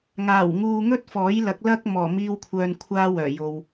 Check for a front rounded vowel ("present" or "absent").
present